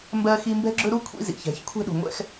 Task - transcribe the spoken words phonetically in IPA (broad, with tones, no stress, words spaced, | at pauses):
mbɜ˦xi˦ mbɛ̤˦ɡ͡ǁɵ˦ɾu˦ kʷʰḭ˦zḭ˨çɛ̤˨˦ç kʷʰɛ̤˦ɗṳ˨ŋʷɛ̰˦x